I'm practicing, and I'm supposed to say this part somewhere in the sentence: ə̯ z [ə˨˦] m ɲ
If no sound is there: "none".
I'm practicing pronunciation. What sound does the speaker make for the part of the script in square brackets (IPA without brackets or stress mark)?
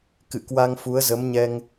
ə˨˦